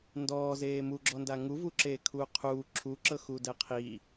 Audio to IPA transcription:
n d ɔː z eː m u ɡ͡ǁ ɔ n d a ŋ u v u ǁ eː kʰ uː qʰ uː ǁʰ u ǁ ɤ x u d ɛ qʰ i

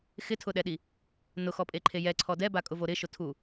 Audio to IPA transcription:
x ɪ tʰ ʊ ɗ ɛ ɗ i | n ʊ x ɔ pʼ e ǃʰ e j ɛ ǀʰ ɔ d ɛ b a kʼ ʊ v o ɾ ɪ ʃ ʊ tʰ u

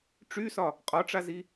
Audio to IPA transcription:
ʈ͡ʂ y s ɒ | qʼ ɒ ʈ͡ʂ a z i

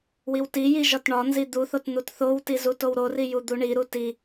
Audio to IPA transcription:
w i w t i j i ʒ ɒ t ɳ ɒ n z i d̪ u θ o t n̪ u t θ o w t i z u t o w ɾ o r i j u d̪ u ɳ i ɾ u t i

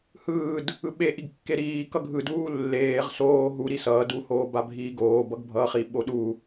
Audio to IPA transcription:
h ɯː d | ɯ ɓ e ʔ i ɡ kː e ɾ iː k ʌ ɡʱ ɯ d uː lː eː ʁ s oː ɦ u ɾ i s ʌː d u h oː b a bʱ iː ɡ oː b ʌ ɡ bʱ ʌː χ i ɓ o ɗ u

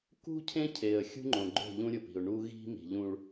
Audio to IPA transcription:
k ṳ˦ cʰ ẽ˦ cʰ e˨ ə̯ xʲ ṳ˦ ŋ͡ǃ õ˨ ɡ͡ǃ o̤˦˨ ʎ ũ˦ ɾʲ ʊ˨ p i̤˨ ʊ̯ ɳ u˦ ɣ i̤˦ m i̤˨ ʎ ũ˨ ɭ

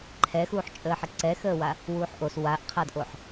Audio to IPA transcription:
ǃʰ ɛ x uː ħ t͡ʃʼ əː ħ ə ǀ ɛ x əː w a | w uː ħ ʔ o s w a ʔ qʰ a d ʔ o ħ

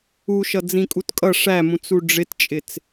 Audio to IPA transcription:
u ʃ ʌ d͡z ĩ kʼ u t kʼ ʌ ʂ æ m ũ t͡s u ɖ͡ʐ ɪ t t͡ʃʼ ɪ t͡s

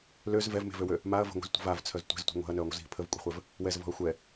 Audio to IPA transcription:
l ø z v ɛ v m e̤ v ø w ø | m a ɐ̯ v ə̤ ŋʷ i̤ z tʷ ə̤ v a v t͡sʰ œ z tʷ ɛ̤ z tʷ i̤ ŋʷ ɛ̤ ɐ̯ n œ ɐ̯ ŋʷ ə̤ z i̤ pʰ ə v kʷʼ ɛ̤ χʷ ɛ v | w ɛ z v ɔ̤ ɐ̯ xʷ ɛ

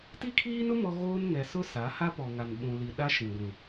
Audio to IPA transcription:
t i˦ kʰ iː˦ n ʊ˦ m ɔ˦ ɣ oː˦ n ŋ ɛ˨ s ʊ˦ s a˨˦ h a˦ p ɔ˨ ŋ a˨ n ɓ ũ˨ l i˨ ɗ a˦ ʃ ĩ˨ ɡʷ ĩ˨

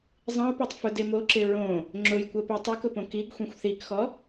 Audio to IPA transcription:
zˤ ĩ u̯ p o tˤ f ʊ d e m o ǁ ɪ ɹ õ | ŋ͡ǁ ʊ j kʷ ə p i tˤ ʊ k ʊ p õ k i ɡ xʷ ĩ xʷ θ i k x ɔ

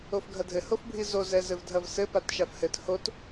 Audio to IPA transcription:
o f ɡʱ ɐ dʱ ɘ h o f bʱ i z o z ɛ z ɘ v dʱ ɐ v s ɘ p a t ʃ a f h ɘ t h o t

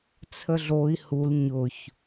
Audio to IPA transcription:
t͡sʰ ə ɮ o i̯ h u l ɲ ʊ ç

